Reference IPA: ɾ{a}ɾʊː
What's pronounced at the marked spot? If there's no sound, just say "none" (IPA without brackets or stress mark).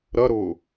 ɐ